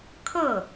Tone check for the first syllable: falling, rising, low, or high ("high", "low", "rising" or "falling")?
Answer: falling